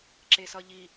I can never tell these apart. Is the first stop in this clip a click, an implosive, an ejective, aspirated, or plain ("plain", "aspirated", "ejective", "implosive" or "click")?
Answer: click